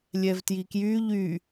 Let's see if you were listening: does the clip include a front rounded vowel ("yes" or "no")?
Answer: yes